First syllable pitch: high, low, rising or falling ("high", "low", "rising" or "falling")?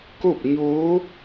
falling